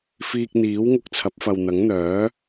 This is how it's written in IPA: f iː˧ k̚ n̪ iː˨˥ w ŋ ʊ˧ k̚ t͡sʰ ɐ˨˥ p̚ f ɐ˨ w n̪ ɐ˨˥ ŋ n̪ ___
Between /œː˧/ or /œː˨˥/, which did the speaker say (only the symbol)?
œː˨˥